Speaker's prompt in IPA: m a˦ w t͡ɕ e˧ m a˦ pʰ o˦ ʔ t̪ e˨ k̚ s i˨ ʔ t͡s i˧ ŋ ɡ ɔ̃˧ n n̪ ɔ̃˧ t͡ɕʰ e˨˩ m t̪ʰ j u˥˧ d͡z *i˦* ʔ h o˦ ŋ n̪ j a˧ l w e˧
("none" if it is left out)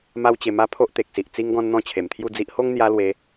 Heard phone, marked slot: i˦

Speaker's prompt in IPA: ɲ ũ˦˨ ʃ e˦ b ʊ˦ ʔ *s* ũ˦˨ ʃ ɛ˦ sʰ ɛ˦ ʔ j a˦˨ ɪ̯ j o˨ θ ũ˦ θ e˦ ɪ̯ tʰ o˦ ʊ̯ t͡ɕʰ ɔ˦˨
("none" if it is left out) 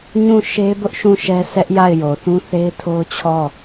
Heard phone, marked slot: ʃ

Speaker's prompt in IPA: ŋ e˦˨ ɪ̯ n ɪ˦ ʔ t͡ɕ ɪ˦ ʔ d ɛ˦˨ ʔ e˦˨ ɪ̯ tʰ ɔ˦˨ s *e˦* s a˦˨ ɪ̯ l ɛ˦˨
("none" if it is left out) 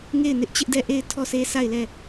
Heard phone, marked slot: e˦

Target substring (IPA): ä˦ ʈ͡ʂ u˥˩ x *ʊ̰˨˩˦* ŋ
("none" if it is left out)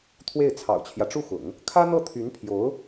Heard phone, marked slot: ʊ̰˨˩˦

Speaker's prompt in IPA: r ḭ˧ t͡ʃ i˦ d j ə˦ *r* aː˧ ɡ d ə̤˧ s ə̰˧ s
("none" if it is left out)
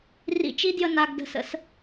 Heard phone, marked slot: n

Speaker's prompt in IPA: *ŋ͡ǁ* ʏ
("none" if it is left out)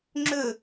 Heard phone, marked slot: ŋ͡ǁ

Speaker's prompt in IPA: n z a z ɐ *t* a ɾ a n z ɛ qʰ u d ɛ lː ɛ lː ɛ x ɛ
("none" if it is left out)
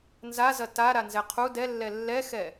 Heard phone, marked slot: t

